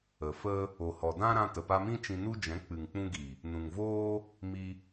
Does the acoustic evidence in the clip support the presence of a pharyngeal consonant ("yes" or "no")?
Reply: no